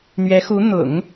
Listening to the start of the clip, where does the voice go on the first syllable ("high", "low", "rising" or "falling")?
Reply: rising